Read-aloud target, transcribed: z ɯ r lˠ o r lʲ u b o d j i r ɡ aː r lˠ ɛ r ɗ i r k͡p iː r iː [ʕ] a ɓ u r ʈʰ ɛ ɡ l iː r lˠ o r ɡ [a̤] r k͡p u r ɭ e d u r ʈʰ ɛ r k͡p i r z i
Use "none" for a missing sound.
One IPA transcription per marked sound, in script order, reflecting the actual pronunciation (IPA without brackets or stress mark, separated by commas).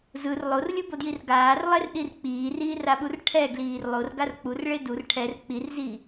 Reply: r, a